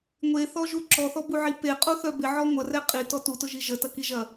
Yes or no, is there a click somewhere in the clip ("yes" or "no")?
yes